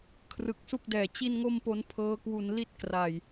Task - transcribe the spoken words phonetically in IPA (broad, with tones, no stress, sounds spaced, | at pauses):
kʰ r ɯ˨˩ k̚ s u˥˩ k̚ d ɛː˨˩ t͡ɕ i˥˩ n ŋ o˥˩ m p o˦˥ n pʰ ɤː˦˥ k w u˧ n l i˦˥ t̚ k r a˨˩ j